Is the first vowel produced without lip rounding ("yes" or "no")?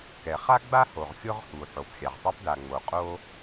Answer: yes